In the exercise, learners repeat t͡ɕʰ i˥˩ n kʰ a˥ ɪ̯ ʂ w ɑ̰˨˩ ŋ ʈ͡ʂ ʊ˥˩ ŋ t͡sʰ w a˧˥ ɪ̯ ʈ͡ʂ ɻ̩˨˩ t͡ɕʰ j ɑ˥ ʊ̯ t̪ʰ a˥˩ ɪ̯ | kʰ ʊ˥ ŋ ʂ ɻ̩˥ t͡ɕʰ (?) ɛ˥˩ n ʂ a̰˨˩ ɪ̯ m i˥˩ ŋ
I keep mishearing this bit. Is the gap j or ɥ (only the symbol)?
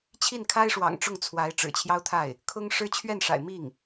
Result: ɥ